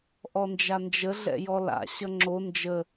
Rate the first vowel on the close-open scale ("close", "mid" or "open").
mid